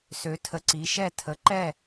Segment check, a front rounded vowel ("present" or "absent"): present